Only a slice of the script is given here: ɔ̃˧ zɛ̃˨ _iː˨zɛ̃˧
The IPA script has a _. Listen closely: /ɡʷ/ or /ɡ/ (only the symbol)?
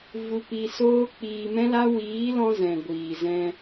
ɡʷ